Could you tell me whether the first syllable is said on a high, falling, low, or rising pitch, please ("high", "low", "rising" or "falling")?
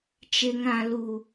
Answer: high